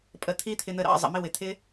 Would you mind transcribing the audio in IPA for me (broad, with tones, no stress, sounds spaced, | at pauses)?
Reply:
pʼ ə˨ t̪ʰ i˦ t̪ʰ ɪ˧ n̪ ə˧ ɾ ɑ̰˧ zˤ ə̰˨ m ɪ˦ w ɪ˨ t̪ʰ ɪ˦